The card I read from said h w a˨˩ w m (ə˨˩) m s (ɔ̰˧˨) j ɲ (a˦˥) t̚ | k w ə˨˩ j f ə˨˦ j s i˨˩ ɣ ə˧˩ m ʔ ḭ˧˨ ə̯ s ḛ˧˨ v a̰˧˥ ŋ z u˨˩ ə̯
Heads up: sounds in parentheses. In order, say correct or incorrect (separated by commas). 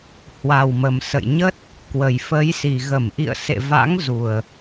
correct, incorrect, incorrect